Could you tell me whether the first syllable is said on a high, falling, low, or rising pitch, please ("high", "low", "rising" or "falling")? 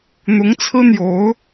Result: rising